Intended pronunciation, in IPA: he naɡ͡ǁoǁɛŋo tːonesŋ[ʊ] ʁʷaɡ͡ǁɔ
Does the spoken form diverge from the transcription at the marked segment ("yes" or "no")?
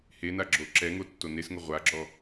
no